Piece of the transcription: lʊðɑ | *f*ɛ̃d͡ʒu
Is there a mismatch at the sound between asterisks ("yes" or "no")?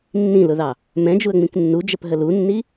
yes